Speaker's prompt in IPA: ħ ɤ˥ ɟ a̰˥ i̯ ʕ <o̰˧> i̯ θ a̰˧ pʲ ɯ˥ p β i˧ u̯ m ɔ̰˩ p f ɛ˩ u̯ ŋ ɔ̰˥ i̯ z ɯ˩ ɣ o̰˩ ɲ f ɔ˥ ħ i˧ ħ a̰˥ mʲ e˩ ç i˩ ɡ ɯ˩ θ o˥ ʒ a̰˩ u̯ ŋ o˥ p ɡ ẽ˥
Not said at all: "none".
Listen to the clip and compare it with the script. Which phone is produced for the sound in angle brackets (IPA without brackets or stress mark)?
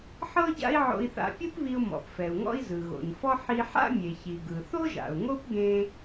o̰˧